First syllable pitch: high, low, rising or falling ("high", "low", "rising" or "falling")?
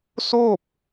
falling